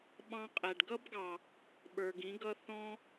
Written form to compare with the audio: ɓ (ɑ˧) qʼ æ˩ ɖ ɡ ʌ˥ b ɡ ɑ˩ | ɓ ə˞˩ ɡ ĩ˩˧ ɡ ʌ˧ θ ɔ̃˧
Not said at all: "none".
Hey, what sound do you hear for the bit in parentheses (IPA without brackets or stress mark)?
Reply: ɑ̃˧